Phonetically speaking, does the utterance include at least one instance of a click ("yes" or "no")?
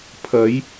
no